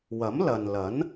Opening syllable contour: rising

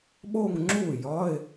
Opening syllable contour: falling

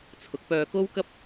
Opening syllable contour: rising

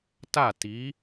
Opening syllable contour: falling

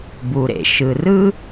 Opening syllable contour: low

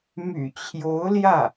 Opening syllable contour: low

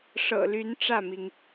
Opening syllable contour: low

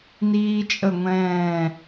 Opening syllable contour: high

